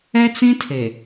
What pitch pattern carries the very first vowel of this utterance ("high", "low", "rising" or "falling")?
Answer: high